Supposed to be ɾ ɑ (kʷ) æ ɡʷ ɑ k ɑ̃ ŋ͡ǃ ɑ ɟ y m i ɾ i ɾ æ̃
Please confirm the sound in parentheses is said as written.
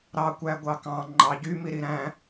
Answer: yes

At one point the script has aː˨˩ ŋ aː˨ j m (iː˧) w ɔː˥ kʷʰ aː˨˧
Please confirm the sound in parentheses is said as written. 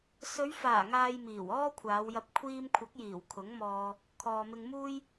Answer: no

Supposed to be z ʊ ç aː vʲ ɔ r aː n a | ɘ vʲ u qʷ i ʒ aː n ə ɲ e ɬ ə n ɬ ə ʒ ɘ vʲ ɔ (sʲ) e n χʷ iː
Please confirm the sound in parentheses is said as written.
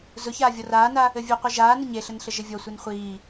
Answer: no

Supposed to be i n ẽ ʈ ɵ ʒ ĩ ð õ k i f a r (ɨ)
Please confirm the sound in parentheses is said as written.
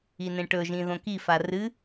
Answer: yes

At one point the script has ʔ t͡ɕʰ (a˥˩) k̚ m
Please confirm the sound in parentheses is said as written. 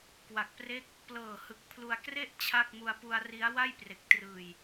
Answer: yes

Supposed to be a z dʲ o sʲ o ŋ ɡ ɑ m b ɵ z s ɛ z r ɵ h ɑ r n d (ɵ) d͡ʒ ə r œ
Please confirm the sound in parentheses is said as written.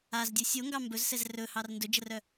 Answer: yes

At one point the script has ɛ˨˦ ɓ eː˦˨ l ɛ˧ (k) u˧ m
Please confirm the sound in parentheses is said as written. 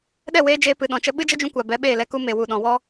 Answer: yes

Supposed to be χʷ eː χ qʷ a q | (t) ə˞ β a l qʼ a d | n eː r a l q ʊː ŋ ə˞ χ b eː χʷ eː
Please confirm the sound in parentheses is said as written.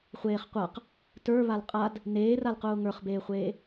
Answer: yes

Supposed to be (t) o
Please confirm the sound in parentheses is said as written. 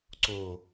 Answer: no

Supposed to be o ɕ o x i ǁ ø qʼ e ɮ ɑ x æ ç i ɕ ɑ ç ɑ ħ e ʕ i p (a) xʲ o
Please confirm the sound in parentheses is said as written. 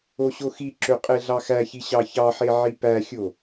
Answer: no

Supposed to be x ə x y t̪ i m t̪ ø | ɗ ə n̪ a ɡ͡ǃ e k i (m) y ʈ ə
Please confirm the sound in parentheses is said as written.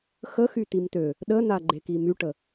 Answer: yes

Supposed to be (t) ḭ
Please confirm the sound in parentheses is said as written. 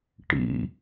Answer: no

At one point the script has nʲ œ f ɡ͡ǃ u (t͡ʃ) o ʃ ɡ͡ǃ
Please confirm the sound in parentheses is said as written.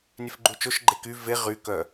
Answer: yes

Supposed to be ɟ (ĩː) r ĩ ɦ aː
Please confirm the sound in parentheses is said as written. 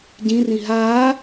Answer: no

